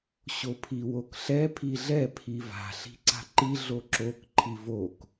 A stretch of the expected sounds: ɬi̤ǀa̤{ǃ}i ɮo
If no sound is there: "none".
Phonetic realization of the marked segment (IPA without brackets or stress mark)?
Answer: ǃ